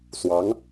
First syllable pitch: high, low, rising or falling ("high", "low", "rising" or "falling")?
rising